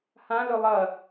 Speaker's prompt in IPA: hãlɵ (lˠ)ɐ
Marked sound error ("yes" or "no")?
no